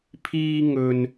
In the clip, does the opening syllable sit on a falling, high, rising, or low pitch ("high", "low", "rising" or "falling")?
high